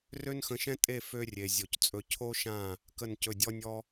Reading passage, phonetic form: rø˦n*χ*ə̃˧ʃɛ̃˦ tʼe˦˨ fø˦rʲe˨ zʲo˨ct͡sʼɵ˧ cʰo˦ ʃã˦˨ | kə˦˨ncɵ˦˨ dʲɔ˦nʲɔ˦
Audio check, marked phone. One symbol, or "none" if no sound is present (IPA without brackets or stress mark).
x